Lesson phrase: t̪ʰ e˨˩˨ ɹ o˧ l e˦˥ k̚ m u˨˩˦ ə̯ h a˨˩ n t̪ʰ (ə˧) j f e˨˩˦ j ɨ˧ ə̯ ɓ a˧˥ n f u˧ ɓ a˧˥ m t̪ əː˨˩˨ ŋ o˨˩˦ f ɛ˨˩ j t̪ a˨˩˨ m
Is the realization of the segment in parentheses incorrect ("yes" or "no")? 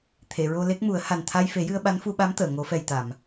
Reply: yes